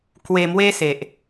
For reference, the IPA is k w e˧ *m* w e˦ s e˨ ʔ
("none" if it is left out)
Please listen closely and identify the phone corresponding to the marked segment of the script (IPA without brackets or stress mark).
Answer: m